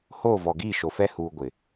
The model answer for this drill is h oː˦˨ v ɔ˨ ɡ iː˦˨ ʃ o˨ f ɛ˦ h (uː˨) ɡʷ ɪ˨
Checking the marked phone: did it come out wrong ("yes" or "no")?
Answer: no